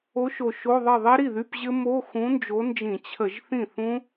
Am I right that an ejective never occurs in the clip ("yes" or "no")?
yes